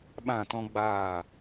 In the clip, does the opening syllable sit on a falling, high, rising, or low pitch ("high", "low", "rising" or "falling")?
falling